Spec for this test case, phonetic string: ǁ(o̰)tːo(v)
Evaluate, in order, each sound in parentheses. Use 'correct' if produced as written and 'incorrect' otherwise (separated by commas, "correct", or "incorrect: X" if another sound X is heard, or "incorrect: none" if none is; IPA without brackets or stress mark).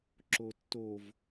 incorrect: o, correct